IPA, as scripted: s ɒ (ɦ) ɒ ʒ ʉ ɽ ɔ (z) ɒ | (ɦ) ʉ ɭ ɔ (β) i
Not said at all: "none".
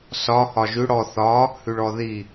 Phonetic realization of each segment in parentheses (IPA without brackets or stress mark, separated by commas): h, θ, h, ð